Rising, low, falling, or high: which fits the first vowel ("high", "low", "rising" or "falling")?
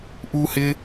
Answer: high